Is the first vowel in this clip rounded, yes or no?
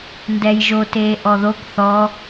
no